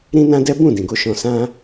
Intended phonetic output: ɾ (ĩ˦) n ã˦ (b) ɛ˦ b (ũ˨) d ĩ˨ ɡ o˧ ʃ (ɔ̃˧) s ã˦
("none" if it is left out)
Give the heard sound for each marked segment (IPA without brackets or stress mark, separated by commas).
ĩ˦, d, ũ˦˨, ɔ̃˧